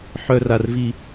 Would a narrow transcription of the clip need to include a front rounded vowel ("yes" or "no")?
yes